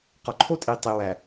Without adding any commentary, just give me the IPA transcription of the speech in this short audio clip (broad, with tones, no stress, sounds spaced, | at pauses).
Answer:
q ɒ˨ ǃʰ o˦ tʼ i˨ tˤ i˨ w æ˨